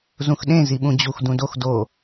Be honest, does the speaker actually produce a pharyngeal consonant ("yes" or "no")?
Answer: no